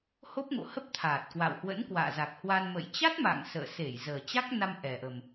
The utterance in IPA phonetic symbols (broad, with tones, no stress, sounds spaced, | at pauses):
h o˦˥ p̚ ŋ o̰˧˨ h ə˦˥ p̚ t̪ʰ aː˨˩ t̚ k w a̰˧˨ w h w ə̰˧˥ n k w a̰ː˧˨ z a˨˩ k̚ h w a˧ n m ə̰˧˨ j t͡ɕ a˦˥ t̚ m a̰˧˨ ŋ s ə̰ː˧˨ s e˧˩ j z əː˨˩ t͡ɕ a˦˥ k̚ n a˧ m ʔ ɛ˨˩ ʔ ə˨˩ m